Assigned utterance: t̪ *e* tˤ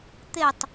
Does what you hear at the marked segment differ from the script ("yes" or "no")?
no